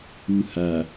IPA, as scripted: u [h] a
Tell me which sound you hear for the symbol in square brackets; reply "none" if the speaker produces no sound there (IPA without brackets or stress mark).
h